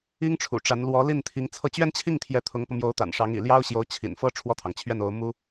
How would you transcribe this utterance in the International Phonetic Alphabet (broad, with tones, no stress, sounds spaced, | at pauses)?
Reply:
i˥ ŋ ʈ͡ʂʰ ṵ˨˩ ʈ͡ʂ a˧˥ n l w ɔ˧˥ l i˥˩ n t̪ʰ i˧˥ ŋ t͡sʰ ɤ˥˧ t͡ɕ ɥ ɛ˥˧ n t͡ɕʰ i˥˩ ŋ t̪ʰ j ɛ˧˥ t̪ʰ ʊ˧˥ ŋ p ɤ˧ m j o˧˥ ʊ̯ t̪ a̰˨˩ n ʂ ɑ˧˥ ŋ ḭ˨˩ l j ɑ˥ ʊ̯ ɕ j o˧˥ ʊ̯ t͡ɕʰ ḭ˨˩ n f ɤ˥ ʈ͡ʂʰ w ɔ˥˩ t̪ʰ ɑ˩ ŋ t͡ɕʰ ɥ ɛ˥˩ n o˧˥ ʊ̯ m u˥